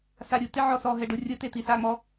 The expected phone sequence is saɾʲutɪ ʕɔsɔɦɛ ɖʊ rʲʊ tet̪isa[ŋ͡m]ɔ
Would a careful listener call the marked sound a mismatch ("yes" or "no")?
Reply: no